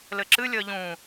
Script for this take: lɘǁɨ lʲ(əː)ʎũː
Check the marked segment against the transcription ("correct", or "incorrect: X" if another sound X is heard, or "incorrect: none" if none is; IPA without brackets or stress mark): correct